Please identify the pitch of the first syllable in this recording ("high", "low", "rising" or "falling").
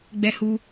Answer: high